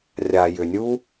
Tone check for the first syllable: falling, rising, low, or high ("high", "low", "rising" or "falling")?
low